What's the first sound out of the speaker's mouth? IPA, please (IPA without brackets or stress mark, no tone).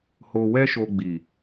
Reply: h